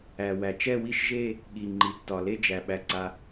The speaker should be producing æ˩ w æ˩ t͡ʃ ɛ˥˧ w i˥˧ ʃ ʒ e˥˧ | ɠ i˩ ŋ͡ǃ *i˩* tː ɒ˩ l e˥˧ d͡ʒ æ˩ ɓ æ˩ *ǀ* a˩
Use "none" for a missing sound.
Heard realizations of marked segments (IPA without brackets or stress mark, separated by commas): i˩, ǀ